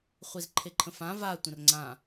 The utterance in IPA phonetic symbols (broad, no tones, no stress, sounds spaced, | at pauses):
χʷ i z ǃʰ e ǃʰ ə̃ f ã v a tʷ ə̃ r ŋ͡ǀ ã